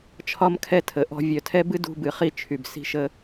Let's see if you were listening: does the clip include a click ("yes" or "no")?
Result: no